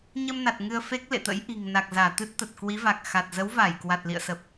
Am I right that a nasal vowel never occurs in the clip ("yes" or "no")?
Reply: yes